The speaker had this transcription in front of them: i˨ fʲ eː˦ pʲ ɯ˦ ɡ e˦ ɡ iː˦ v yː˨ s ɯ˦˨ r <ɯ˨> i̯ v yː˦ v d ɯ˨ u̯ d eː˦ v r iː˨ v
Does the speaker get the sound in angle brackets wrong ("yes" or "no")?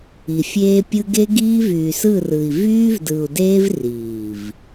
no